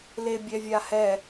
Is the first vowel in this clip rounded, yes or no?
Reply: no